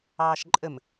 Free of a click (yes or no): no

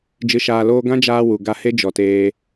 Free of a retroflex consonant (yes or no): yes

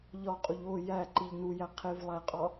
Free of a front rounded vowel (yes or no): yes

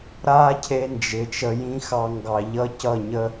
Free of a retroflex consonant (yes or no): yes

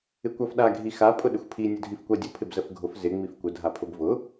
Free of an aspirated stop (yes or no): no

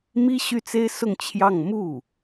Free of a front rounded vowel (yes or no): no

